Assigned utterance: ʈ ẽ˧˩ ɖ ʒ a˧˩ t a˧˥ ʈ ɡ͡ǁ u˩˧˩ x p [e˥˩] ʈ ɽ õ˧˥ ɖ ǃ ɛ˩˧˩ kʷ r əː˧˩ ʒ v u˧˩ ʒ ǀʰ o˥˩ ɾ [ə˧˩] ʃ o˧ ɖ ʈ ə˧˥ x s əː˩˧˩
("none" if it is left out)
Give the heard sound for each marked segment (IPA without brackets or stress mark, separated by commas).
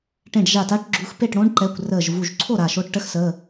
e˥˩, a˧˩